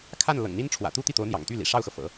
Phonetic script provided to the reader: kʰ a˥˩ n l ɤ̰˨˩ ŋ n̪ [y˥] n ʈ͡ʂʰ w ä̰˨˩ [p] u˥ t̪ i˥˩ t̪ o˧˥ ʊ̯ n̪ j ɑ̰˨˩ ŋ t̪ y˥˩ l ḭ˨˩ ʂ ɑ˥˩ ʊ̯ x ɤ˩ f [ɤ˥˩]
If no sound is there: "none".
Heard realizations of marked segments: i˥, t̪, ɤ̰˨˩˦

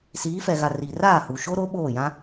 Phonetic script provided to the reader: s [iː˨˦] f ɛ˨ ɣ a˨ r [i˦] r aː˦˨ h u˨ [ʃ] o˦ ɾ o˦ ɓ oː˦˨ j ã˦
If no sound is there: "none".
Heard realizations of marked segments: iː˨˦, i˨, ʃ

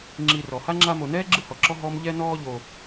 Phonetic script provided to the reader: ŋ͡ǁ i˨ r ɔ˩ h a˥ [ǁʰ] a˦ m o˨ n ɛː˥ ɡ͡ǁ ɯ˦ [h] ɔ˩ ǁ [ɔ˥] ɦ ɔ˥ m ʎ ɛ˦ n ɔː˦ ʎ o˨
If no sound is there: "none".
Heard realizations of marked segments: ŋ͡ǁ, h, ɔ˦

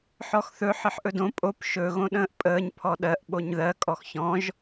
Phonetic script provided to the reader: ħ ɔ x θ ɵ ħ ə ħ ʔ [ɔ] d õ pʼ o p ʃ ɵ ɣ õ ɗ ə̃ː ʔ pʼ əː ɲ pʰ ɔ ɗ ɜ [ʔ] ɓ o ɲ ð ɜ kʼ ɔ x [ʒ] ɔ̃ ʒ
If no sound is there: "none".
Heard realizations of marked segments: ɵ, ʔ, ç

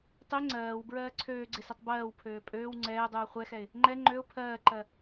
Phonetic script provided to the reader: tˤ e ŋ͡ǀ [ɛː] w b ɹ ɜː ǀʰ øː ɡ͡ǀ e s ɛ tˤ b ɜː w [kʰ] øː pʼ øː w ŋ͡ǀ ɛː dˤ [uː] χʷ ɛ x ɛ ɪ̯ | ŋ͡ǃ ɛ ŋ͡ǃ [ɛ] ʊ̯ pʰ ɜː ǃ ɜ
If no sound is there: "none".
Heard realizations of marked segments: ɜː, pʰ, uː, ø

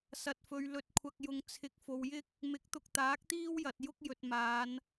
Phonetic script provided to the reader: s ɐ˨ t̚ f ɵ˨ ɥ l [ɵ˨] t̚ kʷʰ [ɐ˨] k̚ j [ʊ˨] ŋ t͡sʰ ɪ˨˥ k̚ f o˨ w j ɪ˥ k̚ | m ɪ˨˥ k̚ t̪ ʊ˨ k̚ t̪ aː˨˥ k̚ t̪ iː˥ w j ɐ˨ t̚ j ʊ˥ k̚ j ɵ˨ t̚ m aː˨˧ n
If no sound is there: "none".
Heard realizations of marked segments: ɵ˨, ɐ˨, ʊ˨

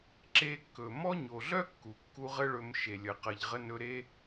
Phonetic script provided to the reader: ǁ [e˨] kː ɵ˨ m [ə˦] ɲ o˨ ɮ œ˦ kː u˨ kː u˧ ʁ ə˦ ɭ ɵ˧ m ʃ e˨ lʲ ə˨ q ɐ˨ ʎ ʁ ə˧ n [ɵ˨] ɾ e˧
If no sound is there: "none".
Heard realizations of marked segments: e˧, ɔ˦, ɵ˧

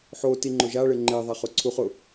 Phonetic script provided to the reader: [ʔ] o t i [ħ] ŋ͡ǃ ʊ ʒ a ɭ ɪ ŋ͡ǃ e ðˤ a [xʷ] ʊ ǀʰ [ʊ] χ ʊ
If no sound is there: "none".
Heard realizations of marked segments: ħ, none, χ, u

